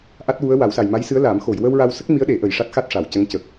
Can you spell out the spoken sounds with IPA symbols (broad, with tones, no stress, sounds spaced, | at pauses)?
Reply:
ʔ a˦˥ t̚ w u˧˥ ə̯ w a˨˩˦ w s a˨˩ j m a˧˥ j s ɨ˧˥ ə̯ l aː˨˩˦ m x o˨˩˨ j w ə˧ w ɹ a˧ w s ə˦˥ k̚ m i˧˥ ə̯ ɗ e˨˩˦ ʔ ə˨˩ j ʂ a˦˥ t̚ x a˦˥ t̚ ʂ a˨˩˨ w c ə˧˥ ŋ c ə˨˩ k̚